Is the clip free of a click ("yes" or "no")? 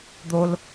yes